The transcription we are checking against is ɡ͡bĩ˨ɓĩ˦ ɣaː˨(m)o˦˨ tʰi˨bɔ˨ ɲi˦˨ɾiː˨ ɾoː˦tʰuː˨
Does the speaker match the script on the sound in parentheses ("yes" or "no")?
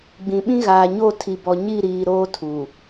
no